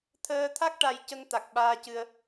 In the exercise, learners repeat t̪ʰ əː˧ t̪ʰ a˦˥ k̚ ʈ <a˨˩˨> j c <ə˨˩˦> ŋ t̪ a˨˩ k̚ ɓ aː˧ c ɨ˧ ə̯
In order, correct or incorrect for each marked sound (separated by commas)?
incorrect, incorrect